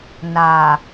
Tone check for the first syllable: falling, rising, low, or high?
low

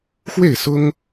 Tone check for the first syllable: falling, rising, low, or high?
falling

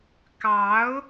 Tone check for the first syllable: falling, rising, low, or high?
rising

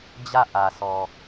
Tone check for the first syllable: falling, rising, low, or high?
falling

